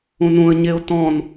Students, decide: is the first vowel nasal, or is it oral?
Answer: nasal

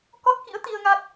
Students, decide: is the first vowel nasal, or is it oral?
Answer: oral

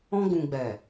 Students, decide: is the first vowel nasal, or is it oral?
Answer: nasal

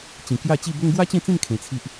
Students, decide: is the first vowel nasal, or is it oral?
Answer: nasal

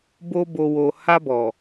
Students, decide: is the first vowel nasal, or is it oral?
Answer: oral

